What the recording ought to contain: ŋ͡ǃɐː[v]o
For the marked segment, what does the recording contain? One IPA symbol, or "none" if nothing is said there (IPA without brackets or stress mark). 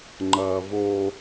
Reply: v